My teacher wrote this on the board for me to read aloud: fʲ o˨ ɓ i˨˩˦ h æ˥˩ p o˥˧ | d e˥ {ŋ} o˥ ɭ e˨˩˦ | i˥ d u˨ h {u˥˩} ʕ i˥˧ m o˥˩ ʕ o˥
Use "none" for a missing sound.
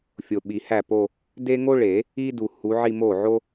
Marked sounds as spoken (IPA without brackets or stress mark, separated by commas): ŋ, u˨˦